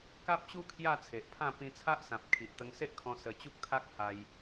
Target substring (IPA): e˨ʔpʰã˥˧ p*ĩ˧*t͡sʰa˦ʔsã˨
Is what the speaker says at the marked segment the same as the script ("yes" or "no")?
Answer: yes